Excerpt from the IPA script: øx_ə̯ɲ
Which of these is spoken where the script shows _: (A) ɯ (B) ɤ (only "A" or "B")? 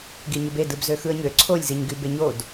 A